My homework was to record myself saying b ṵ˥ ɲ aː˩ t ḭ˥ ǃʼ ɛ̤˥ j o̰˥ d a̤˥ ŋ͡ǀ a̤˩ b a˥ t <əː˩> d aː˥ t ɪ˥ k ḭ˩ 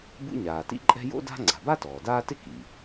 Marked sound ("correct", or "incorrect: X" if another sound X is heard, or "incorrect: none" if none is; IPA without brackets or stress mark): incorrect: ɔː˩